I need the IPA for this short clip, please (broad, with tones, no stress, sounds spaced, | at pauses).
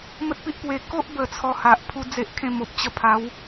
m ə˦ t̚ p i˦ ʔ p w e˧ k o˦ ʔ b ə˨˩ t͡sʰ ɔ˧ h a˨ ʔ pʰ u˦ d͡z e˦ ʔ kʰ ẽ˥˧ m o˨ p̚ t͡ɕ ə˧ pʰ a˨˦ w